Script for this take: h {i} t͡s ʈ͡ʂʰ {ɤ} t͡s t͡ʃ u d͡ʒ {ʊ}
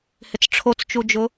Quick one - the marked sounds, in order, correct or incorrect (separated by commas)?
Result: incorrect, incorrect, correct